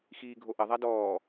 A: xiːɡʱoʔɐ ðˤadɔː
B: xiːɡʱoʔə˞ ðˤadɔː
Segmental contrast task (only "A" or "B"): A